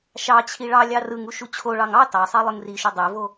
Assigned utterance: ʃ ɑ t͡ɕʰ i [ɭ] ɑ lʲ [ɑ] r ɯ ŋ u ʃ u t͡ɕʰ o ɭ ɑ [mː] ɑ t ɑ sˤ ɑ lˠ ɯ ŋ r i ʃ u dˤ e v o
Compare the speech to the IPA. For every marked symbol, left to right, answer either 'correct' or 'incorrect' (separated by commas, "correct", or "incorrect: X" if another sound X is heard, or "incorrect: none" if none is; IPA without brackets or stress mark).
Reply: correct, correct, incorrect: ŋ